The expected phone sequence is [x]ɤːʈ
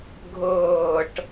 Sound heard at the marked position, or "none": ɡʱ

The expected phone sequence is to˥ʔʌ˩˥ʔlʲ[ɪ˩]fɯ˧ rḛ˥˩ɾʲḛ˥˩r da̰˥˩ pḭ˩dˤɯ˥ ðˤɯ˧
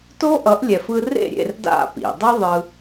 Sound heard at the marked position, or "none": ɛ˩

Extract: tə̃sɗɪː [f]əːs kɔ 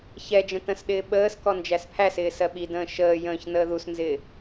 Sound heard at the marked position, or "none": ɓ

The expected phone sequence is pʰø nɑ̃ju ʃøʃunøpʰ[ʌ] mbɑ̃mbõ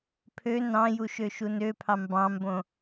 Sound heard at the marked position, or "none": ɑ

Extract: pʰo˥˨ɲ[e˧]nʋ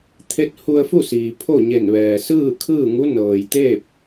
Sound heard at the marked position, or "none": e˧˩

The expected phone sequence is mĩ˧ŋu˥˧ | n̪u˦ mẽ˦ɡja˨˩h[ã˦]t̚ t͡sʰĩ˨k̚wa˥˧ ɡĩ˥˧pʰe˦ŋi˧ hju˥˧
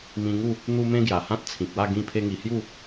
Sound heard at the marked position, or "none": ã˦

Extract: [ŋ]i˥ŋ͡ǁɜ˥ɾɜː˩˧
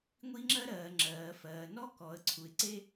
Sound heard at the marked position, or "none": ŋʷ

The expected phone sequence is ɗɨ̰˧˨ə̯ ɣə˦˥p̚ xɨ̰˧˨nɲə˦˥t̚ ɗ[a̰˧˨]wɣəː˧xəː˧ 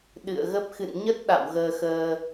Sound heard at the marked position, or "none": a̰˧˨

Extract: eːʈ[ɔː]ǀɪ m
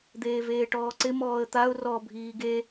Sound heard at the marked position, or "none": ɔː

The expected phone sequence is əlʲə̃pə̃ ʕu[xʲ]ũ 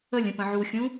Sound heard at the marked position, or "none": xʲ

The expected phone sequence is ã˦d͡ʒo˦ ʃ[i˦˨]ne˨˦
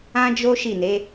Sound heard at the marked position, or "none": i˦˨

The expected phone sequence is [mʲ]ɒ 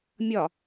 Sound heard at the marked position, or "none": mʲ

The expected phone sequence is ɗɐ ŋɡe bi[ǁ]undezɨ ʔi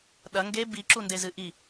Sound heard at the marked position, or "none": ǁ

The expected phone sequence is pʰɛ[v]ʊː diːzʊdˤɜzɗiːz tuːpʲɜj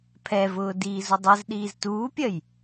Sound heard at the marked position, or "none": v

